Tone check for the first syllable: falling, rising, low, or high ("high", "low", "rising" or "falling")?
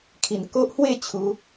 low